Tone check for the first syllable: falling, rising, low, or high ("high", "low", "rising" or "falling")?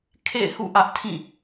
falling